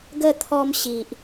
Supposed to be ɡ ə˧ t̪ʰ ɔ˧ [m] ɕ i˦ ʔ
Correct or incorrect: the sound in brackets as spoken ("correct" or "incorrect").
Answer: correct